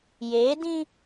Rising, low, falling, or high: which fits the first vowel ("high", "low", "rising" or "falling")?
rising